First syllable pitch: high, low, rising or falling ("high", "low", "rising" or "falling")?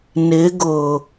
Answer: rising